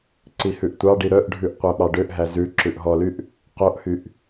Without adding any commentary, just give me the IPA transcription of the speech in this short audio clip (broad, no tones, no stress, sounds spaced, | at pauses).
ǀ i h ʉ ʔ tʷ ɑ ɖ i ɾ œ ʔ ɖʱ ʉ ʔ qʷ æ ɓ ɑ ɖ ø ʔ ɦ æ z ʉ ǁ ʉ ʔ ɦ ɔ l y ʔ | q o ʔ h y ʔ